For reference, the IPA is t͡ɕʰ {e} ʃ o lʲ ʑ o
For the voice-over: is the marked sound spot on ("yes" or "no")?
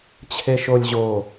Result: yes